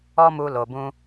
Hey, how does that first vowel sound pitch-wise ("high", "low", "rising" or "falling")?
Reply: high